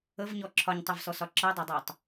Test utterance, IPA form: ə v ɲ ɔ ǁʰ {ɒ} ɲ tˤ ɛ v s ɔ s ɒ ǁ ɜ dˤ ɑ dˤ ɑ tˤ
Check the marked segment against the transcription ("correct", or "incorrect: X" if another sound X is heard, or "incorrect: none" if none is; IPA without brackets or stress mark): correct